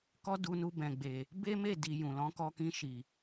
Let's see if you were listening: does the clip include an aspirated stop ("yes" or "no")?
no